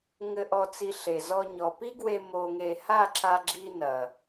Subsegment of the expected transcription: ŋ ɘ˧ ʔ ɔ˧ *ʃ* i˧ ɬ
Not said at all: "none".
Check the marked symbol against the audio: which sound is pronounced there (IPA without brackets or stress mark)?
t͡s